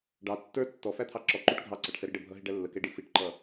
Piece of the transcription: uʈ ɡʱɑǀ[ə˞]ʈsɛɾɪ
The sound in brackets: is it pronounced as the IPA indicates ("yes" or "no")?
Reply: no